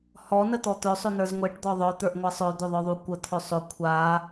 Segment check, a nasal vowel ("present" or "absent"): absent